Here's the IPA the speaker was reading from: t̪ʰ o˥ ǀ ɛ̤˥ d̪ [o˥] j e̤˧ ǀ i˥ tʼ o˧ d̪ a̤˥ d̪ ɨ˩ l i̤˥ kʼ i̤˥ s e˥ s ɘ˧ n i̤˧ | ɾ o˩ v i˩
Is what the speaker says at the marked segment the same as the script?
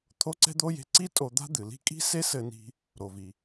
yes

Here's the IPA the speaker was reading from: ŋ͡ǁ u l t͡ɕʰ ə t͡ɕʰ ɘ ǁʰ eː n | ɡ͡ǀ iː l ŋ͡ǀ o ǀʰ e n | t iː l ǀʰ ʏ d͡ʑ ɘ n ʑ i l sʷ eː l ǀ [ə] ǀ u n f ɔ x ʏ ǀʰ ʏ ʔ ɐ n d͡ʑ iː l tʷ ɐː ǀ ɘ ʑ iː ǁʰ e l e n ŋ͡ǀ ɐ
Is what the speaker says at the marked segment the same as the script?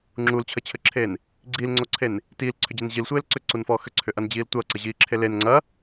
no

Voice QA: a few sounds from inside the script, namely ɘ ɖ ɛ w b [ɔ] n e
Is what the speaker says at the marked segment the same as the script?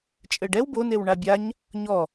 no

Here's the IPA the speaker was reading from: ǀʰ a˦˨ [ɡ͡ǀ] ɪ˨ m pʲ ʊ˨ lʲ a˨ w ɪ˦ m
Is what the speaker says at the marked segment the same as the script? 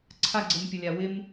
yes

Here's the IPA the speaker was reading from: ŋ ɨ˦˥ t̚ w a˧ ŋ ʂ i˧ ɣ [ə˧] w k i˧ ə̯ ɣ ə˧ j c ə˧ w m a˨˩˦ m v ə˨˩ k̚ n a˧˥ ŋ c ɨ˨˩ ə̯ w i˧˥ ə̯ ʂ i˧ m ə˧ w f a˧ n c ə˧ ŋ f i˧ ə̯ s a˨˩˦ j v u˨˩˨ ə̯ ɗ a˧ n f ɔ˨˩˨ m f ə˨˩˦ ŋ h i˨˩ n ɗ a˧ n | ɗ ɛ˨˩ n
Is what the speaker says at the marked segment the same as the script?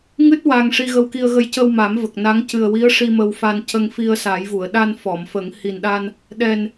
yes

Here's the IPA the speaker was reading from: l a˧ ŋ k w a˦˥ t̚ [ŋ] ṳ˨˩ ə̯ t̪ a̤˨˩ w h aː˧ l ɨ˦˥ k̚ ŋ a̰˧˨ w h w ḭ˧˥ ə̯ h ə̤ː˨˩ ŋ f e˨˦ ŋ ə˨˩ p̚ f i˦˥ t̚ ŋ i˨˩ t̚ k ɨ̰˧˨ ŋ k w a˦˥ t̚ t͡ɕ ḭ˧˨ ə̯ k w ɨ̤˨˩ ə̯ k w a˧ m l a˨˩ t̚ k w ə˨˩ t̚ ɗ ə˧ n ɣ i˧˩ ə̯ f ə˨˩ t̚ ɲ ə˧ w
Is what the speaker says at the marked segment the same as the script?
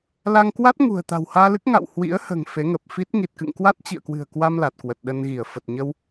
yes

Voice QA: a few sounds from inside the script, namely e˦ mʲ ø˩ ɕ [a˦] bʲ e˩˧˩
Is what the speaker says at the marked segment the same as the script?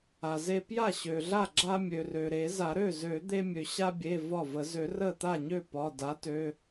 yes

